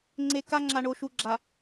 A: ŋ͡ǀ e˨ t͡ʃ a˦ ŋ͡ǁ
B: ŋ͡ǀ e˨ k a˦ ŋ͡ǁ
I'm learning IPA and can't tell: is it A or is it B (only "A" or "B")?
B